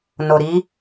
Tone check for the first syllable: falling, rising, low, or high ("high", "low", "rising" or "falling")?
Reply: low